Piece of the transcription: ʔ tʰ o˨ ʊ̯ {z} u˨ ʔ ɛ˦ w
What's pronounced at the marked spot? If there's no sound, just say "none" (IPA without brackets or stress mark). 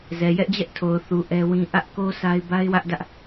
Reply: θ